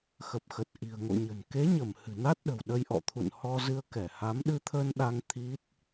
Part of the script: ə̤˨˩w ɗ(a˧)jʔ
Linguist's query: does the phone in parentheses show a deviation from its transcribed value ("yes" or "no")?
yes